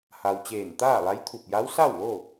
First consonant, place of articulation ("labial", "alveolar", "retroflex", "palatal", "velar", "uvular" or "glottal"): glottal